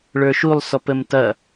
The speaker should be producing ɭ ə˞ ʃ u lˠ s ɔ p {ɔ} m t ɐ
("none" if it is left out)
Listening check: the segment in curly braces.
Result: ə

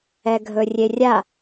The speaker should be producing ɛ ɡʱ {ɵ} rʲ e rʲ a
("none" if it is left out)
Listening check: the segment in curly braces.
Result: ɵ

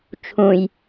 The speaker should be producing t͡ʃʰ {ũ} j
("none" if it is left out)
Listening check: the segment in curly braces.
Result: ũ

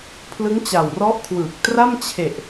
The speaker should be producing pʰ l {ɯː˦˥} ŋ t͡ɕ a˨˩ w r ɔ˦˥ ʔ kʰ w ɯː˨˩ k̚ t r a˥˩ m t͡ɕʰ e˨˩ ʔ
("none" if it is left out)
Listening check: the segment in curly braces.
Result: ɯ˦˥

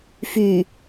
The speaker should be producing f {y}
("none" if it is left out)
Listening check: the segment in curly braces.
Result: y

